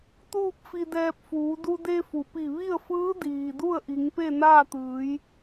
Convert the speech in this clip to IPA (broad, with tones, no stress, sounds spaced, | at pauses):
t̪ uː˥˨ p̚ f i˧ d ɛː˧ p̚ f uː˩˧ d u˧ d e˧ f u˩ p i˧˩ ʋ i˥˨ ə̯ f ɯː˧˥ d iː˩ d u˥˨ ə̯ ʔ i˩˧ ŋ p e˥˨ n aː˥˨ t̪ ɯː˩˧ j